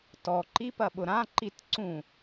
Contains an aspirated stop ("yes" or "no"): no